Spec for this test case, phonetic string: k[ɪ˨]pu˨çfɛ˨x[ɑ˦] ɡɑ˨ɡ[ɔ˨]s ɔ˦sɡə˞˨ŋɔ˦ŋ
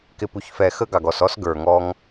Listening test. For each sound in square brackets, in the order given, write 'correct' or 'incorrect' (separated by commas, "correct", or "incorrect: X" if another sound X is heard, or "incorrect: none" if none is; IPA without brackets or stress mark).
correct, incorrect: ə˦, correct